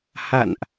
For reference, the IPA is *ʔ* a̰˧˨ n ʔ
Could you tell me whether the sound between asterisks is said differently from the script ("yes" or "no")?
yes